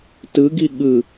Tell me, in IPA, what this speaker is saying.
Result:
t ɯ ɡ i ɠ ɯ

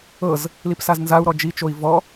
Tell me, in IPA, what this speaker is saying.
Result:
ɤ z | l i p s a z n z a u̯ ɾ ɔ d͡ʒ i t͡ʃ o i̯ v ɔ

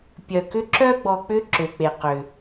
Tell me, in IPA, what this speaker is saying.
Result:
pʲ œ˩ k ʏ˦ ǁ œ˥ ɡ͡b ɔ˨ k͡p ʏ˦ ǁ ø˩ k͡p e˩ q ʏ˩

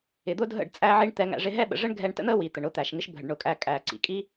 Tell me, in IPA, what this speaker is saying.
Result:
ɪ˨ d̪ ʊ˦ dʱ ə̰˦˨ ɖ t͡sʼ æ˦ ʕ i˦ ɳ t̪ ɛ˧ ŋ æ̰˧ ʐ ɪ˧ ɦ ɛ˦ ɓ ə̰˨ ʐ ə˦ ɳ ɡʱ ɛ˧ ɳ t ə̰˦ n̪ əː˦ w i˨ t̪ ə˨ ɳ ʊː˦ t̪ æː˨ ʃ ŋ ɪ˦ ʃ bʱ ə˨ ɖ ɳ ʊ˧ kʼ æ˧ kʼ æː˨ ǀ ḭ˨ kʼ i˦

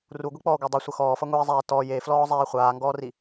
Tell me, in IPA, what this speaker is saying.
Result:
r u ɡʷ i k͡p ɔː ɡʷ ɛ dˤ i sʷ ʌ x ɔː f ʌ ŋʷ iː zˤ ɛː t ɔ j e f l ɔː zˤ eː χʷ aː ŋ ɡ ɔː r i

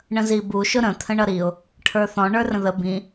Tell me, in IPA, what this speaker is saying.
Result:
ɳ ə̃ z i b u ʃ ʊ ɾ ə̃ t̪ʰ ə̃ ɳ ʌ ɾ i ʊ̯ | ʈʰ ə˞ θ ɔ̃ ɳ ə˞ r ə̃ ð ə b ĩ

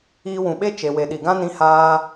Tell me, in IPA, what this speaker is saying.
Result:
iː˧ w ũ˨ ɓ e˦ t͡ʃ e˨ w e˨ ɗ i˨ ɡ ã˦ n ĩ˧ h aː˧

